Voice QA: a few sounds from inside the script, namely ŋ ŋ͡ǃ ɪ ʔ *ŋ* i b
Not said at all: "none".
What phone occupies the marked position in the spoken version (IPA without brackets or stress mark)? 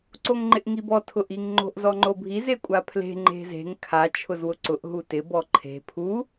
ŋ